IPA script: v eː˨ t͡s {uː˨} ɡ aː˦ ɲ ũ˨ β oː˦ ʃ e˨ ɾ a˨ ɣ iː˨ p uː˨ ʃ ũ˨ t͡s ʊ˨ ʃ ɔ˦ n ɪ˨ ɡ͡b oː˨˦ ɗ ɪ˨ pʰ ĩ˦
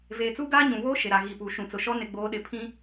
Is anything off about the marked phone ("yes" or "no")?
yes